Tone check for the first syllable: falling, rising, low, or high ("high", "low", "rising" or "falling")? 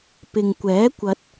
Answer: low